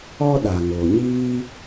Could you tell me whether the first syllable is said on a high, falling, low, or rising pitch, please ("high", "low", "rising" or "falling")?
high